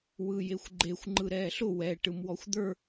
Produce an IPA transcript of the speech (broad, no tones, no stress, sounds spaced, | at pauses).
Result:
w ɯ j e xʷ ɡ͡ǃ e xʷ ŋ͡ǃ ɯ ɾ ɛː ɬ ʊ w ɛ ʈ ɯ m w ɔ xʷ d̪ ə˞